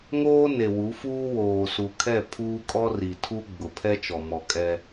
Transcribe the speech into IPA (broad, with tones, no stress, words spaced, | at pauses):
ŋoː˦ne˨wu˨˦fuː˦ woː˨su˨kʰɛ˦˨ pʰuː˦kʼɔ˦ ri˨tʰu˦ ɡ͡bʊ˨ pʰɛ˦t͡ʃɔ˨mɔ˨ kʼɛ˦